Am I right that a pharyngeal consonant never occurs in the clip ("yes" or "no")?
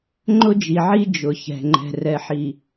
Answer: no